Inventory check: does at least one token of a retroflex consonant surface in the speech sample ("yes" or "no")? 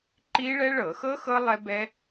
yes